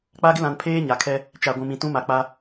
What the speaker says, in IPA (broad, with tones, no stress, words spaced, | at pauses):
k͡pa˦ɡɪ˦lã˨npʰeː˦ ɲa˨kʰɛ˦ | t͡ʃa˨ɡʷũ˨mĩ˨ tũ˦ma˨k͡pa˦